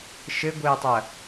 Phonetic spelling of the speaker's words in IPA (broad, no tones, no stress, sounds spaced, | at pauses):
ʃ ɘ ɡʷ ɘː tˤ ɐ